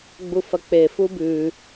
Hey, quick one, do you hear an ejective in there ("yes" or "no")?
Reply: no